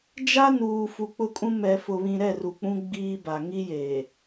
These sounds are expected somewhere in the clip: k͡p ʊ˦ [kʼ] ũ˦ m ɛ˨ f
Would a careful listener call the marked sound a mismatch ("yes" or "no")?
no